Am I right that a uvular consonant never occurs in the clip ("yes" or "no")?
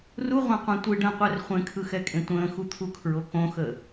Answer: no